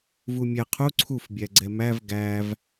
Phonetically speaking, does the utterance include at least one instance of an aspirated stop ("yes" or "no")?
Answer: yes